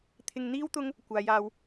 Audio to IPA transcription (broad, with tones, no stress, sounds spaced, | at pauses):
t̪ʰ ɪ˧ ŋ n̪ iː˥ w t̪ ʊ˥ ŋ | kʷ aː˨˧ j aː˧ w